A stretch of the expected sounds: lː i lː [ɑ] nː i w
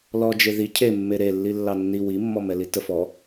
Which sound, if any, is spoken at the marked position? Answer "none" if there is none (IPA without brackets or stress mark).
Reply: ɑ